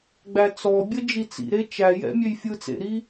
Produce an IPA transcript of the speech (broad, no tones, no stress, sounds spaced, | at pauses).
ɡ͡b æ t͡s ɔ bʲ ə d͡ʒ i t͡s ḭ ɾ e t͡ʃ æ j ɛ̰ mʲ ø j fʲ ɯ t͡s ḛ ɾ i